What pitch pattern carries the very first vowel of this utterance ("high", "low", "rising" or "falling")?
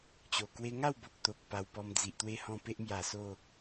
low